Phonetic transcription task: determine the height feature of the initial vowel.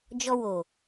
mid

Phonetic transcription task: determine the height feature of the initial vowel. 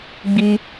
high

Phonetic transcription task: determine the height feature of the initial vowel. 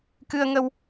high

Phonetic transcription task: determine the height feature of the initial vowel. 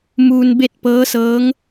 high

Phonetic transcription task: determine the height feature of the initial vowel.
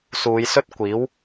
high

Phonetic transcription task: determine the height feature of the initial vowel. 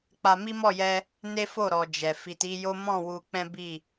low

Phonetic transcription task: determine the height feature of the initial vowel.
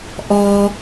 mid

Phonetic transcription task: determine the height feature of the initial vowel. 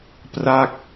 low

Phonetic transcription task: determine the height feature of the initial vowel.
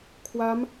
low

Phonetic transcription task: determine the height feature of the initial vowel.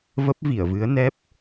mid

